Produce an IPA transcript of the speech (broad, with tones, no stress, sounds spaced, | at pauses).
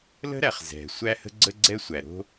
l ə̤˦ ɾ æ˨ χ z ɛ̤˨ sʷ æ˦ h ə̤˦ ɡ͡ǀ ə˦ ɡ͡ǀ ɛ˦ sʷ æ˨ ɾ o̤˦